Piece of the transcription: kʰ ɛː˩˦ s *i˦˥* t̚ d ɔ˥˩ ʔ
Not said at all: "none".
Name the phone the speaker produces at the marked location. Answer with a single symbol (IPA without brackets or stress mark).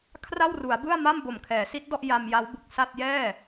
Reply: i˦˥